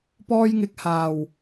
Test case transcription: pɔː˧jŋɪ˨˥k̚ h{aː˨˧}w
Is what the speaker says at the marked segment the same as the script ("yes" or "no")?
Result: no